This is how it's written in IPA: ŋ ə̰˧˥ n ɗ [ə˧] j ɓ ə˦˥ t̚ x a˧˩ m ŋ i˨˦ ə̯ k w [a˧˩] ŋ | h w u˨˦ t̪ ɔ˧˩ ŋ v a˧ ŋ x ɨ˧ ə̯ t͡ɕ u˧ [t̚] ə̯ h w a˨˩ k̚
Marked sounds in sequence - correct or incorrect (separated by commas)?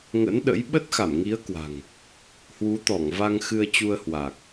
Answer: incorrect, incorrect, incorrect